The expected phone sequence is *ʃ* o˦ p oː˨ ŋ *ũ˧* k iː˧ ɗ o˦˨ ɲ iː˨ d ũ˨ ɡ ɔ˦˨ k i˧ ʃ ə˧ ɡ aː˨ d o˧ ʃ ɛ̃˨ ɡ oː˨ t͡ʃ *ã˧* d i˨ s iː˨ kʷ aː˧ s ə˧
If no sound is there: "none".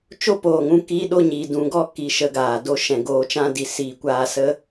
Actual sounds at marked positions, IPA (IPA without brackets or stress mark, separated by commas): t͡ʃ, ũ˧, ã˧